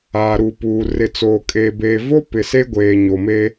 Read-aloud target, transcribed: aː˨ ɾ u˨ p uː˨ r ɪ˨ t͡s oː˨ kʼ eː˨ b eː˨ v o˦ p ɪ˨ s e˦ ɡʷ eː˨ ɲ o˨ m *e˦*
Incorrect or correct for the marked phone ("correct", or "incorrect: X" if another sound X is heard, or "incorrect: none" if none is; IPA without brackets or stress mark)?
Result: correct